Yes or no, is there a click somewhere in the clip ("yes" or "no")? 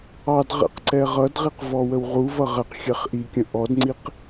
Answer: yes